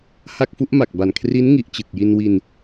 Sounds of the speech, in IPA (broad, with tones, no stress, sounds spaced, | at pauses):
h a˥˩ k̚ f u˦˥ ʔ m a˨˩ k̚ b a˨˩ n kʰ r i˦˥ n ŋ i˨˩ ʔ t͡ɕ ɯ˨˩ k̚ j i˧ n w i˧ n